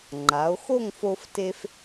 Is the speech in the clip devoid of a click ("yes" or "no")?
no